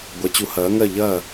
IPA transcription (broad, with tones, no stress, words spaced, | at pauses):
ɡʷɐ˨˥t͡ɕu˨˥hɐː˨˥ŋɜ˥˨ ʎɐ˥˨